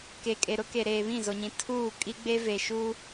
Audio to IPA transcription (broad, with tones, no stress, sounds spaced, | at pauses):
k e˨ kʼ e˨ ɾ ʊ˦ k e˨ ɾ eː˨ β ĩ˦˨ z o˨ ɲ ĩ˨ tʰ uː˦˨ kʼ i˦ ɡ͡b e˦ v e˨ ʃ u˦